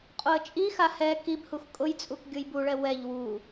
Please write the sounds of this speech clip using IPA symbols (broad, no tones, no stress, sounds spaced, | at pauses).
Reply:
qʼ o ə̯ t͡ʃʼ i x a h ɛ k i b h u x kʼ ʊ j t͡sʼ u k ɡʲ ʊ j b u ɭ ɛ w ɛ ʎ w u